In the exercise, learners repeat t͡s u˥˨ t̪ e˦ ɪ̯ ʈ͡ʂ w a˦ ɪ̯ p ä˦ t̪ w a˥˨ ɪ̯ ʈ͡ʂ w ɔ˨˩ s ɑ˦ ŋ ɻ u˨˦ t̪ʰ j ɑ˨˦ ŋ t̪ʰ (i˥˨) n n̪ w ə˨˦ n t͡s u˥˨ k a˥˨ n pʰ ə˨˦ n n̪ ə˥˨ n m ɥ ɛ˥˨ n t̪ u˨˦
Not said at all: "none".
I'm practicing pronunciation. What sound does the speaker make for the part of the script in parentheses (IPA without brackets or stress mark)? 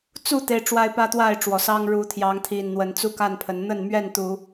i˨˩